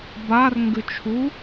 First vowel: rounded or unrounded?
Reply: unrounded